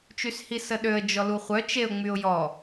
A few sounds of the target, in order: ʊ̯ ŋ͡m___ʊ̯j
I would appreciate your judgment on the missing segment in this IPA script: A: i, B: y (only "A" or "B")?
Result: B